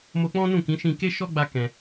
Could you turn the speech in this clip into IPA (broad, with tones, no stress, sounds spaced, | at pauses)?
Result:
m o˧ k͡p ɔ̃˦ n ũ˦˨ k ĩ˨˦ ʃ ĩ˧ k e˦ ʃ ɔ˦ ɡ͡b a˧ k ɛ̃˧